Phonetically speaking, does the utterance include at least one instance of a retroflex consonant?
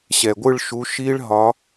yes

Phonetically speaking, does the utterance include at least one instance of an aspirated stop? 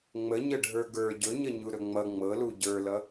no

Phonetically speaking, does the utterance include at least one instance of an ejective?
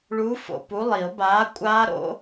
yes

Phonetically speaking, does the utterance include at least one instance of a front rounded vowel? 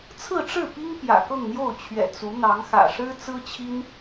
no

